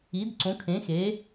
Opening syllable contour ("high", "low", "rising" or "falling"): rising